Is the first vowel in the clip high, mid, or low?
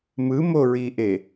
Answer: high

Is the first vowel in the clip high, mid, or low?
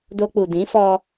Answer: mid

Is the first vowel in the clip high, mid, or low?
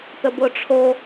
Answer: mid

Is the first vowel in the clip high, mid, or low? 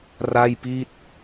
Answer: low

